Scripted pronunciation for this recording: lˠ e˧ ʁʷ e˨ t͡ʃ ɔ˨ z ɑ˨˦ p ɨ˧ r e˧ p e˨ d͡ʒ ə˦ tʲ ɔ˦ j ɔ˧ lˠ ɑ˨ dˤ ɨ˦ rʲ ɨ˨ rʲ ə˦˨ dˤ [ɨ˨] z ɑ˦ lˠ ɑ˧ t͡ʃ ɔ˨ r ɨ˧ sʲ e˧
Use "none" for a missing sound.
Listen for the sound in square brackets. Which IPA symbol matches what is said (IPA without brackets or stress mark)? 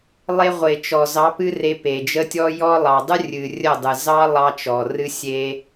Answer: ɨ˨